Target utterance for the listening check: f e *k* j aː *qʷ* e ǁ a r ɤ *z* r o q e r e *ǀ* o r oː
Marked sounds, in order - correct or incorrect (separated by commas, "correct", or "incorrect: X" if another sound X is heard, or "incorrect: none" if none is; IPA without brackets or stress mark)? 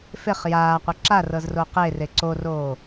incorrect: χ, correct, correct, correct